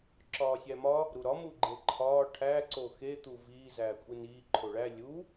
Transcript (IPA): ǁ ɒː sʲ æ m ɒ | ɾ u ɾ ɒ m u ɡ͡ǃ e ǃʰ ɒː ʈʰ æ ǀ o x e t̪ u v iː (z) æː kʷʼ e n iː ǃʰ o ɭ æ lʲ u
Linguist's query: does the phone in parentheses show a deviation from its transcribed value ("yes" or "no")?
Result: no